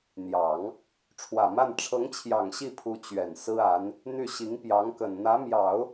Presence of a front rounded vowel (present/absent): present